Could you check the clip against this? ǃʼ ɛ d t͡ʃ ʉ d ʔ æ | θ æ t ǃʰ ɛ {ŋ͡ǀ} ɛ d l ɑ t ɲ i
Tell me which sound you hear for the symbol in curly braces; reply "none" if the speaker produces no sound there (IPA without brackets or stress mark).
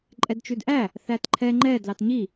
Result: ŋ͡ǃ